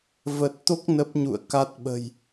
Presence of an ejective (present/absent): absent